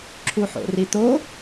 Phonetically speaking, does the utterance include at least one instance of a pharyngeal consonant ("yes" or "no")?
yes